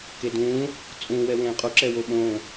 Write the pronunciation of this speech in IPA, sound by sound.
k e d ũː | t͡sʼ ũ w ɛ w ẽː qʼ u ǁ ɛ w o ɓ õː

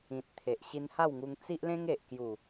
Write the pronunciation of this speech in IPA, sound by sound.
ĩ˨ t̚ t̪ʰ e˨ ʔ ɕ i˧ n h a˥˧ w ŋ u˧ ŋ t͡s i˦ ʔ l ẽ˦ ŋ e˨ ʔ k j u˨˩

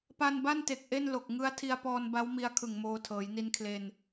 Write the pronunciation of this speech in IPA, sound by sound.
p a˧ n b a˥˩ n t e˨˩ k̚ ʔ e˥˩ n l o˨˩ k̚ ŋ ɯ˦˥ a̯ tʰ i˧ a̯ p ɔː˧ n b a˦˥ w m i˦˥ a̯ kʰ ɯ˨˩ ŋ m oː˧ tʰ ɤː˩˦ j n i˧ n kʰ l e˧ n

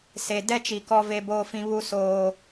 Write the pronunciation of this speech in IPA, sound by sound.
s e˨ d ɛ˦ t͡ʃ i˨ k ɔ˦ v e˦ b oː˦ f ĩ˦ β u˦ s oː˦

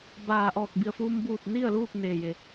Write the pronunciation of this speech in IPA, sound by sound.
b aː˧˩ ʔ ɔː˧˩ k̚ b i˧˩ ə̯ f uː˧ m b uː˧˩ t̚ n i˥˨ ə̯ l uː˥˨ k̚ n eː˧˩ j e˧˩

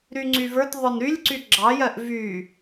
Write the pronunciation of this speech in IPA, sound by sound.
ɾ y ŋ͡ǀ y v ə˞ t ðˤ ə˞ n ɾ y lʲ ǀ y ɡ͡ǁ ɑ j ɜ ʔ v y

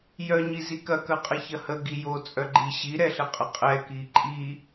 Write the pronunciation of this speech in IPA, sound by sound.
j œ ɲ i z i k ɐ k ɐ qʼ ə ç ɐ h ə ɡ i j o t͡sʼ œ ɡ͡ǃ i ɕ i ɾ ɛ ɬ ə qʼ ə qʼ ɛ k i ǃʼ i

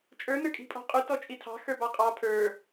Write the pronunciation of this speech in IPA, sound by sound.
t͡ʃʼ ə˞ n ə˞ kʼ i̤ pʼ ɔ̤ qʼ u t ɔ t͡ʃʼ i tʰ ɑ̤ x ə˞ b ɑ qʼ ɑ pʰ ə˞

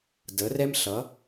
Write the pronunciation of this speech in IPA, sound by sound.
d ə˨˦ r ɛ˦ m ɬ ʌ˨˦

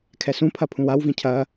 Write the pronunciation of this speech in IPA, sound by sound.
kʰ ɛ s ũ pʰ ɐ pʰ ũ w a w v ĩ cʰ ɐ

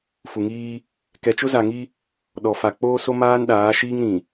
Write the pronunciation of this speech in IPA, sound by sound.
f u˨ ŋ iː˦ | k ɛ˨ t͡ʃ ʊ˦ z a˨ ŋ i˦ | ɗ ɔ˨ f a˨ k͡p oː˦ s o˦ m aː˦ n ɗ aː˨˦ ʃ iː˦ ŋ ɾ ĩ˨

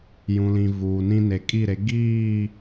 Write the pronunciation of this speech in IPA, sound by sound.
j ũ˨ l ĩ˨ v uː˨ n ĩ˦ n e˨ kʼ i˦˨ ɾ e˨˦ ɡ iː˦˨

